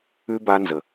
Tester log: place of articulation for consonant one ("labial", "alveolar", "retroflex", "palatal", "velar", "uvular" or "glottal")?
labial